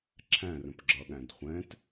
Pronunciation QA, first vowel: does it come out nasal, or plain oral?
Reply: nasal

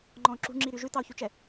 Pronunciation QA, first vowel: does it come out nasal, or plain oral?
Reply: nasal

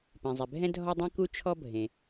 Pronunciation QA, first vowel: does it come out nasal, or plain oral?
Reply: nasal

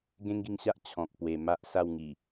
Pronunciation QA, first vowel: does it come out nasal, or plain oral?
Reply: nasal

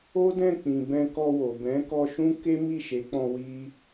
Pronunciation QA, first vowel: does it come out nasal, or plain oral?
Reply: oral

